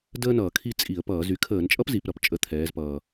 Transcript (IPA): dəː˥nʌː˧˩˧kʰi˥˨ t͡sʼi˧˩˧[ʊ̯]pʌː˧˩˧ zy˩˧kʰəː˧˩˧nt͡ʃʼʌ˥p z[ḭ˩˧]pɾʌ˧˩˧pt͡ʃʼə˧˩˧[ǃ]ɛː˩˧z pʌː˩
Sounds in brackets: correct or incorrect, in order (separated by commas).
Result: incorrect, incorrect, incorrect